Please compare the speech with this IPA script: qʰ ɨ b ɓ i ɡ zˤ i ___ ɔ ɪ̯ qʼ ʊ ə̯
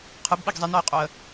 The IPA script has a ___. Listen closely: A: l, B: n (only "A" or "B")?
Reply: B